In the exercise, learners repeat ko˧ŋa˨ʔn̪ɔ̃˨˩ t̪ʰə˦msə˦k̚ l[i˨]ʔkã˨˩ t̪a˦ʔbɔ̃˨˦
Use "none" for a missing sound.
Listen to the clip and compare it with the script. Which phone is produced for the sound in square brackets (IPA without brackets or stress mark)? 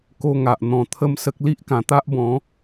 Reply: i˦